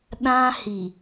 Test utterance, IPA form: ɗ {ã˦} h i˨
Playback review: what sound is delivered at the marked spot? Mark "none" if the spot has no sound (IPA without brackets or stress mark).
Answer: ã˦